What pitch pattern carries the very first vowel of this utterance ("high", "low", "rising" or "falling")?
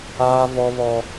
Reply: high